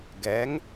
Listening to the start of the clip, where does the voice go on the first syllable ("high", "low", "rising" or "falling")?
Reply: rising